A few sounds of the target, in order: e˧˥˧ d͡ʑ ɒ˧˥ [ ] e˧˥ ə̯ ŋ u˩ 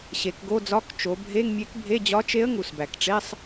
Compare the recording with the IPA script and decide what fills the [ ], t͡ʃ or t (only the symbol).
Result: t͡ʃ